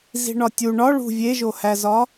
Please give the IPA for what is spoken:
zi̤ɳɒtʲu ɳɒ ɭṳ vʲeʒohæzɒ

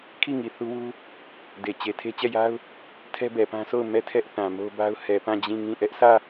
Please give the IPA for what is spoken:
kʰi˦˨ŋi˨ θu˦wu˦ | de˨t͡ɕe˨ tʰe˦t͡ɕɛ˦˨ja˦ʊ̯ | tʰɛ˦bɛ˨pã˦so˦˨ʊ̯ mɛ˦˨tʰɛ˦ʔ θã˨mo˦ba˦ʊ̯ hɛ˨pã˦˨ d͡ʑĩ˦˨ŋĩ˦˨ ʔɛ˦ʔsä˦˨

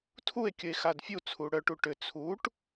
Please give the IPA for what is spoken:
tʰue̯kʲəe̯xad fʲut͡sʰu ɽœʈu ʈʏ t͡sʰuʈ

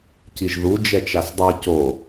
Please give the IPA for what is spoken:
ciʒðu d͡ʒɛt͡ʃasdˤi co

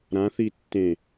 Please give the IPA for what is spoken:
ɾãθi tːẽ

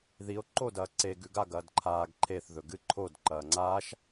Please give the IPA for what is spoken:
ðio̯ ǃo dɐːǀe ɡʉɡa ɡɐːdǃʰaːɡ ǃʰeθ ðɵɡɨ ǃʰod ǃɐːŋ͡ǀaːʃ

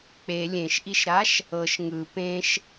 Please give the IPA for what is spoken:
k͡pe lʲẽʃʔiʃɾaʃ | ɤʃ ŋɯ pẽʃ

